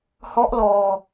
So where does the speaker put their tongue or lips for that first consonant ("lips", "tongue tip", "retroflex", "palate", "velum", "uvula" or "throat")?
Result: throat